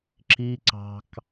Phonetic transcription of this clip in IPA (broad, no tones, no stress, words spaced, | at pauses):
ǁi ǀɑ̤k